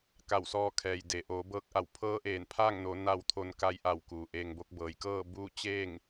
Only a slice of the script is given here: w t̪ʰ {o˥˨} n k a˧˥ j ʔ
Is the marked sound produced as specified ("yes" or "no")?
no